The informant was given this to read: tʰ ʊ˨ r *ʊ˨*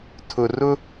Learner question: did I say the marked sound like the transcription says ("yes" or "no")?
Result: no